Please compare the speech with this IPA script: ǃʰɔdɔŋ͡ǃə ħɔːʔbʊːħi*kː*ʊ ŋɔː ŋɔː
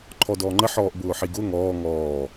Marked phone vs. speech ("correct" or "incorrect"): incorrect